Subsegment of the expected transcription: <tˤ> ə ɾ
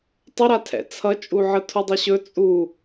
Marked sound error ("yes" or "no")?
no